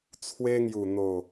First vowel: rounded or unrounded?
unrounded